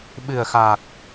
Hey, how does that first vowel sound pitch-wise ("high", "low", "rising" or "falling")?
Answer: low